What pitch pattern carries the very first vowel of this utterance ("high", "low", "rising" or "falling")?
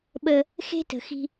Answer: high